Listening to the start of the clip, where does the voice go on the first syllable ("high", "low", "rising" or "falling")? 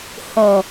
low